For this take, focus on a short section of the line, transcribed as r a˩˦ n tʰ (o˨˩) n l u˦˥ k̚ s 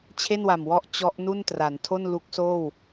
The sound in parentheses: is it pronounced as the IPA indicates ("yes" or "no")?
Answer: no